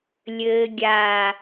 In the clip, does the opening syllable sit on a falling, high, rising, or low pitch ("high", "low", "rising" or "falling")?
low